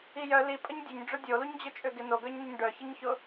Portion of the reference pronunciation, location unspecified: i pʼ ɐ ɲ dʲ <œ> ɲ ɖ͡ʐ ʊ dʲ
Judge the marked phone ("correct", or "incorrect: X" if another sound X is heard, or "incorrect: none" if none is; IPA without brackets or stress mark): incorrect: ø